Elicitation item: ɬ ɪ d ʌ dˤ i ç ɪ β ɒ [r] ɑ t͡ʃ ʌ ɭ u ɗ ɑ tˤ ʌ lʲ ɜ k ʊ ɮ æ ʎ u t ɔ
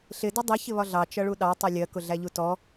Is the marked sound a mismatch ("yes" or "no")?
yes